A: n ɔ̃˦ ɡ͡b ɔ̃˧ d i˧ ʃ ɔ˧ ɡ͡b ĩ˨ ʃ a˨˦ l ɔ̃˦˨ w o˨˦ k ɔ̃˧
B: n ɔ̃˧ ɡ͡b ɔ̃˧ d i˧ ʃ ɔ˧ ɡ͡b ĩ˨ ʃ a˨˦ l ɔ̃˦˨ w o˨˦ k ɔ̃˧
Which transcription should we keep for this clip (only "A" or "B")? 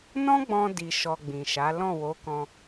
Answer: A